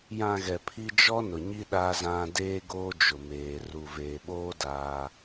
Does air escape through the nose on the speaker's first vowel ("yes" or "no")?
yes